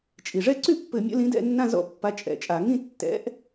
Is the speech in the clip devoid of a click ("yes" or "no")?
no